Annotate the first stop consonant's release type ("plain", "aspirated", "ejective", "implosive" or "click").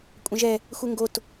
ejective